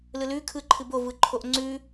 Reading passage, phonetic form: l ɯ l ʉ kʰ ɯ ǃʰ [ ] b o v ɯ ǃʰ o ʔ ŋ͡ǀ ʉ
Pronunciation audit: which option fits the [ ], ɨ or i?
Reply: ɨ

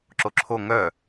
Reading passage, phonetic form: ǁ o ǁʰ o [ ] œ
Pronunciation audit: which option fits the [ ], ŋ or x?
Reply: ŋ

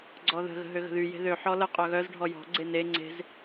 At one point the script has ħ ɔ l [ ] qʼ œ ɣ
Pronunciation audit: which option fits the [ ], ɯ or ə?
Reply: ə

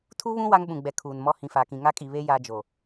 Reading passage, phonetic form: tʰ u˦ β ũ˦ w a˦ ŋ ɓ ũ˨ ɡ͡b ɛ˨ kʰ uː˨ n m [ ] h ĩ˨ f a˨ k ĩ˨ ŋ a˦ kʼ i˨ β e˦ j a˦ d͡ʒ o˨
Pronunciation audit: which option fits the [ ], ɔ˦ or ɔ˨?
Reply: ɔ˦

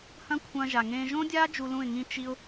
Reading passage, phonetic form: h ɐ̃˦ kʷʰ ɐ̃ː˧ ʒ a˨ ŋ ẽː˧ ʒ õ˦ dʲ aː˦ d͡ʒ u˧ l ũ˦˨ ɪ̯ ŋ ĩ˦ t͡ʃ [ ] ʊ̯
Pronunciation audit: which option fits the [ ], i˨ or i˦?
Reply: i˦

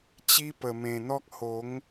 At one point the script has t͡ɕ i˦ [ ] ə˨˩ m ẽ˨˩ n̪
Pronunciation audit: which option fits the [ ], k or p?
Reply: p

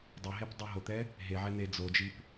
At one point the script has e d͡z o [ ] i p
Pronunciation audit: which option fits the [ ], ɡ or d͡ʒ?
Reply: d͡ʒ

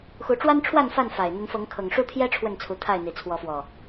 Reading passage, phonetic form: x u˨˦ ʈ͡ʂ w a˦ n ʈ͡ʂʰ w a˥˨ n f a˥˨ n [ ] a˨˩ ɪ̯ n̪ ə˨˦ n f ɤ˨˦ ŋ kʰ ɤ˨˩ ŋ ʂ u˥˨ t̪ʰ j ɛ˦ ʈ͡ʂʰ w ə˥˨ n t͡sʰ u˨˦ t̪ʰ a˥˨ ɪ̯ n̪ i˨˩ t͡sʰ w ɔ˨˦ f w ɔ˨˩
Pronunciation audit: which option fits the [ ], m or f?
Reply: f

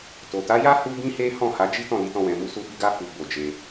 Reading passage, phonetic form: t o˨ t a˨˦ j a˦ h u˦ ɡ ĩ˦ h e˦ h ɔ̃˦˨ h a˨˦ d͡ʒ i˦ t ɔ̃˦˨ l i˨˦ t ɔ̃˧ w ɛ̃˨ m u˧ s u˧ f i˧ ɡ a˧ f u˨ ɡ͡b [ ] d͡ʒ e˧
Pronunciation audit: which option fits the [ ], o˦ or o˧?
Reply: o˧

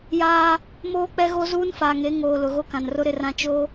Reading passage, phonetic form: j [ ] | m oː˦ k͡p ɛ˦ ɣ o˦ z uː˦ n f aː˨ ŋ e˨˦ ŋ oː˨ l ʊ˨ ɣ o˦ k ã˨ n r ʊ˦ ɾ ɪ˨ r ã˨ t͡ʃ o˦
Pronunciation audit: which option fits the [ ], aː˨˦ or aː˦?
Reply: aː˦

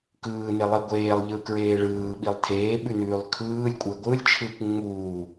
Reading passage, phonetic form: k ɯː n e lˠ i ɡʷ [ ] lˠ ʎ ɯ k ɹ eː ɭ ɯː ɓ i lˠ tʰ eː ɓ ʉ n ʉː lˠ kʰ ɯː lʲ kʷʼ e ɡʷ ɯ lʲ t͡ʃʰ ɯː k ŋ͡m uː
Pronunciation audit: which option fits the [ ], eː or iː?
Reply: eː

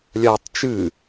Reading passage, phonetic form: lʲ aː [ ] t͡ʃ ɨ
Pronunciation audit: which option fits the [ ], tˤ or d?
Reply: tˤ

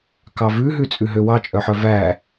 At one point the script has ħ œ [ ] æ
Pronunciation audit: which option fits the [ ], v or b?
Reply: v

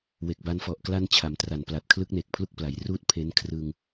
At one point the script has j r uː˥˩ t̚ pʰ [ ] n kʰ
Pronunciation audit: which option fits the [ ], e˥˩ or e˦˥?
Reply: e˦˥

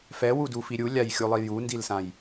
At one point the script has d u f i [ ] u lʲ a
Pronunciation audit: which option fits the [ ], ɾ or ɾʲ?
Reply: ɾʲ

